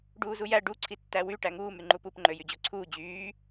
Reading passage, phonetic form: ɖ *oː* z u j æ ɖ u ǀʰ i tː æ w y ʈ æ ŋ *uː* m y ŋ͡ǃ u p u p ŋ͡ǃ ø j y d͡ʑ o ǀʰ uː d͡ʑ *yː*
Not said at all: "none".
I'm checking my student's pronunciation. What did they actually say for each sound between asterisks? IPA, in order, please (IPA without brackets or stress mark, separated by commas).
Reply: uː, uː, yː